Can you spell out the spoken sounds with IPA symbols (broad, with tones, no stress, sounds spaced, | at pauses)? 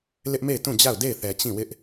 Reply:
l ɪ˦ ʔ m e˦˨ ɪ̯ t ũ˦˨ d͡ʑ a˦˨ ʊ̯ d e˦˨ ɪ̯ θ ɛ˨ t͡ɕ ĩ˦˨ w ɪ˦ ʔ